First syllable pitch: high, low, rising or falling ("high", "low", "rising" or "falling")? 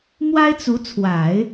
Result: high